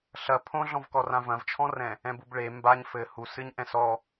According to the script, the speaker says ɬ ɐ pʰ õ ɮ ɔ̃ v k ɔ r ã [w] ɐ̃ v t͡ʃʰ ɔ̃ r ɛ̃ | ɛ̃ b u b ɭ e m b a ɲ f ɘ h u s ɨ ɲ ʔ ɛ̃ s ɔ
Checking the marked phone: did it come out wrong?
yes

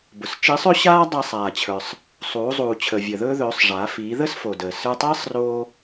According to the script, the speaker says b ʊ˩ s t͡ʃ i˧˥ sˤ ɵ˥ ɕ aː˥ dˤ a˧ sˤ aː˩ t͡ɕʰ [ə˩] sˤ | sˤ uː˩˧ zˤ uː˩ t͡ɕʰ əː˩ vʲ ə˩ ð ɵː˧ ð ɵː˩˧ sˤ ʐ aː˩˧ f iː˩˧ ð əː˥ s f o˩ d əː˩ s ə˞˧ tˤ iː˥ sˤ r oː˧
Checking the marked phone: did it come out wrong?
yes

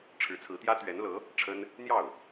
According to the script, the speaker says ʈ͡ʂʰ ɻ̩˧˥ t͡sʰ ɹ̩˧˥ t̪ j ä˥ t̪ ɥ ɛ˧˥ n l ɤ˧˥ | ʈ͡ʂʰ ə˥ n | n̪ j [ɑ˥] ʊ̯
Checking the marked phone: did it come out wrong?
yes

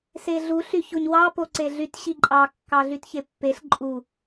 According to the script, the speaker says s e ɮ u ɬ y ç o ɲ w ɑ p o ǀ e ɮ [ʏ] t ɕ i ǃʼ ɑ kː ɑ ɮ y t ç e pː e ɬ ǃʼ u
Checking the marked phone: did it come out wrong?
yes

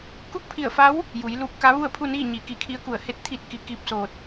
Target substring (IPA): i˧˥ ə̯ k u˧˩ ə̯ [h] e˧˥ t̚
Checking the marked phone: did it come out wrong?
no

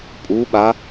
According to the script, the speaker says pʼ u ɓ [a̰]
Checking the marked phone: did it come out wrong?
yes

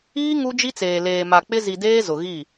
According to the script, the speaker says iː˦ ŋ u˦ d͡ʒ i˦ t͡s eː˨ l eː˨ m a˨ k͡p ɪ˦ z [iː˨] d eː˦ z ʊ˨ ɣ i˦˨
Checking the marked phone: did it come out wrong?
yes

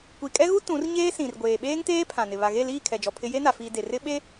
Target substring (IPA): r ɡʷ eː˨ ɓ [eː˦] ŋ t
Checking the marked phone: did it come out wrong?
no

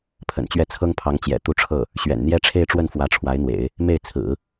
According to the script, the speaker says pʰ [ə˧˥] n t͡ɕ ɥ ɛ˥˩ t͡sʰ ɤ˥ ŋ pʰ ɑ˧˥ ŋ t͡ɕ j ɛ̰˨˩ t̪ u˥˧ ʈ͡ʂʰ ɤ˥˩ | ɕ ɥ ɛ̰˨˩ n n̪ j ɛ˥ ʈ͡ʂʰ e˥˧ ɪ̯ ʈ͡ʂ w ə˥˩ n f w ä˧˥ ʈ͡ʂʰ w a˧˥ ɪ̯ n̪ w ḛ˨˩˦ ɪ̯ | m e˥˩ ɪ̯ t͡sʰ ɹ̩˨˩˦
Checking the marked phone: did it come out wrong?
yes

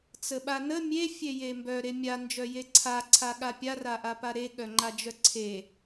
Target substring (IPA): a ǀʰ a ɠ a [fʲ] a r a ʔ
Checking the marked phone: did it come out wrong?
yes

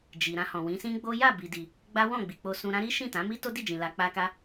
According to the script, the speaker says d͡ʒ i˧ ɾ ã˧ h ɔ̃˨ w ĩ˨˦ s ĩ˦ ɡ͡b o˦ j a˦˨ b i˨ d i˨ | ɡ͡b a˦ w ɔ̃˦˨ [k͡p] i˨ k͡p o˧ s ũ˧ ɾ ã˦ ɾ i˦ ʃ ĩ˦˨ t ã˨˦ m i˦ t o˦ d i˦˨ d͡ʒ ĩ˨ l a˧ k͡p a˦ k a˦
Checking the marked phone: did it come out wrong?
yes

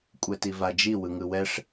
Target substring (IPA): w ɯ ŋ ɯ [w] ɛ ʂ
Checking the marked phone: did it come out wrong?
no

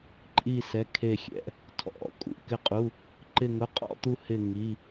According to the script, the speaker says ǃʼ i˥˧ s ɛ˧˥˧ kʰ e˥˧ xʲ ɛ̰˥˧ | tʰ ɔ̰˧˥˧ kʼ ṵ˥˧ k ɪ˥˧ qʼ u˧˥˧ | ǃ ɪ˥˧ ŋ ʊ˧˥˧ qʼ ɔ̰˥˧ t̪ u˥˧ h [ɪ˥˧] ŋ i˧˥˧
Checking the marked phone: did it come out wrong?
no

